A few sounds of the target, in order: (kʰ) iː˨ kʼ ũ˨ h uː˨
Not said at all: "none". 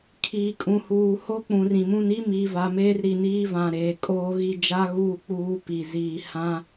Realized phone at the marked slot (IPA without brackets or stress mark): kʰ